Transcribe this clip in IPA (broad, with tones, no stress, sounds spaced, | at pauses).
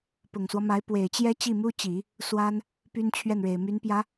p ʊ˨˩ ŋ s w ɔ˦ m a˧˥ ɪ̯ p w e˨˩ ɪ̯ t͡ɕ j ɛ˥ t͡ɕ i˥˩ m u˥ t͡ɕ i˨˩˦ | s w a˥ n | p y˥ n t͡ɕʰ ɥ ɛ˥˩ n ɻ e˨˩ ɪ̯ m y˧˥ n p j ä˧˥